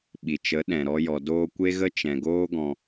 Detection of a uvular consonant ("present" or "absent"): absent